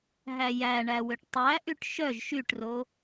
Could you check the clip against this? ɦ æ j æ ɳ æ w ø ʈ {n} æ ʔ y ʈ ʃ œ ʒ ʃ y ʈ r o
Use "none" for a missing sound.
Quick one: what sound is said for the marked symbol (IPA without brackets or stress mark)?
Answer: tˤ